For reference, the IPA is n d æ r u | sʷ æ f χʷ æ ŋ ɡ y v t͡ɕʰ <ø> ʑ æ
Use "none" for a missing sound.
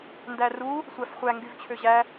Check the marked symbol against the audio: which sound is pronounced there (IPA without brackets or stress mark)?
ø